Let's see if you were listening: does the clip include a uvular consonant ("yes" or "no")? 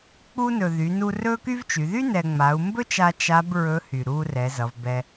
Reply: no